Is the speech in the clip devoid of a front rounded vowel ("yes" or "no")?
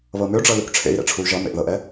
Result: no